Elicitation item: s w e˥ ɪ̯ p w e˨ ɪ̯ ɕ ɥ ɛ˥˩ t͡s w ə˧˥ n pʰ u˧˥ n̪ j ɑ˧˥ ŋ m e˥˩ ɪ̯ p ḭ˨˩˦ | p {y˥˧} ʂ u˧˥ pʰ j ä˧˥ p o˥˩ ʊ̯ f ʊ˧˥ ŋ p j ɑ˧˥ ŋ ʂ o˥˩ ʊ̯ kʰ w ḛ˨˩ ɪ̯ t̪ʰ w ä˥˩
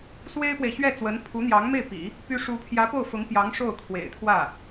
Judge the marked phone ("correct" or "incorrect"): incorrect